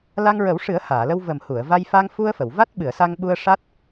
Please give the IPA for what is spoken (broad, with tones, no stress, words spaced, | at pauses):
la˧ŋɹə˨˩˦wʂɨ˨˩˦ə̯ haː˨˩˨lə˧w və˨˩mhu˨˩˨ə̯va˧j fa˧ŋfu˧ə̯ fə˨˩˨w va˦˥t̚ɓɨ˨˩˨ə̯sa˧ŋɓu˧ə̯ ʂa˦˥t̚